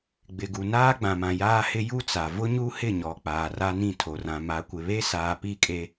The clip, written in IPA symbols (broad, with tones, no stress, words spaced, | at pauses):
ɡ͡bɪ˨ɡu˨ naː˦ɡ͡bã˨mã˨ jaː˦hɪ˦ ju˦t͡sa˨ vʊ˦ɲu˦ hɪ˦˨ɲɔ˨ k͡paː˨ra˦nĩ˦˨ tʰo˨rã˨ma˨˦ kʷɪ˨ βe˦saː˨ pi˦˨kʼe˦